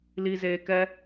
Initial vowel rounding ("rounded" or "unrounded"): unrounded